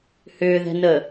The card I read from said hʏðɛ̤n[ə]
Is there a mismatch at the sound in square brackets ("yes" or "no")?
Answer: no